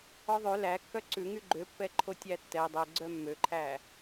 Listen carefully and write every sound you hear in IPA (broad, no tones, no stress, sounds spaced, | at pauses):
ɔ ðˤ ø l æ kː œ ǀ ʉ ŋ y ɡ͡ǃ ø pː ɛ ǃʰ o tʲ æ tː ɛ dˤ ɛ ɡ͡ǀ œ mː ø ǃʰ æ